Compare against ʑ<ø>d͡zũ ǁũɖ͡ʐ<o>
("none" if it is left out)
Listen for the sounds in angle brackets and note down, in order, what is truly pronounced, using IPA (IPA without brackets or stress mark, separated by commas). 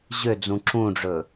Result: ø, ɵ